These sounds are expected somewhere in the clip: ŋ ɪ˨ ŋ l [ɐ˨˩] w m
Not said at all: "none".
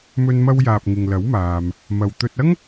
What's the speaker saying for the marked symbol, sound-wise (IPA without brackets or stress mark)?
ɐ˨˥